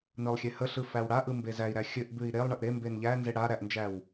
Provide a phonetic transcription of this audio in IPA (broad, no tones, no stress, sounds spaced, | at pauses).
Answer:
n ɯ lˠ xʲ e h ə ɬ ɯ f æ w ɽ a ʔ ɯ m b e z æ i̯ ɾ æ xʲ ɘ ʔ b ʉ i̯ ɾ e lˠ ɳ ɘ ʔ ɾ e m b e n ʎ æ n z e ɽ a ɾ æ ʔ n d͡ʒ æ w